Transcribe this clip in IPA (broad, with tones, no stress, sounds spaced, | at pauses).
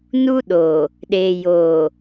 n u˦ ɗ o˨ | ɗ eː˨ j oː˨